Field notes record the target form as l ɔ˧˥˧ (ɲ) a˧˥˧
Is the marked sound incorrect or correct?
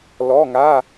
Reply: incorrect: ŋ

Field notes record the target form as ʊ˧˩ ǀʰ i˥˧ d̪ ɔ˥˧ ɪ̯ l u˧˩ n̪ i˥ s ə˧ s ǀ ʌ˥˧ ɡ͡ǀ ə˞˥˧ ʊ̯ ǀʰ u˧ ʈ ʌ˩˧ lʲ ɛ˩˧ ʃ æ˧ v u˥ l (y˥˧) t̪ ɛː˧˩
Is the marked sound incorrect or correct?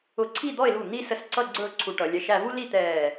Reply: incorrect: i˥˧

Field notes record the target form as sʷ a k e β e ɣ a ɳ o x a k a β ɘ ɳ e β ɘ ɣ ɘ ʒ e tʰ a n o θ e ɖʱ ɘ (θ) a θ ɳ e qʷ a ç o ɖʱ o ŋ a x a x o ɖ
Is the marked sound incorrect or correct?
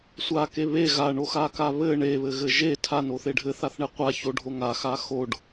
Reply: correct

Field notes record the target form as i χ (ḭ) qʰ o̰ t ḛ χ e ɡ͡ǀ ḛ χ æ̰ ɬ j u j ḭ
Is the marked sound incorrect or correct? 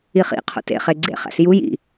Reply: correct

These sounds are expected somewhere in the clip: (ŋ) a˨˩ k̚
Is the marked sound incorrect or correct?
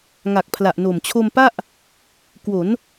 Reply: correct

